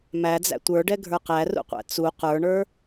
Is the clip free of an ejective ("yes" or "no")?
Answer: yes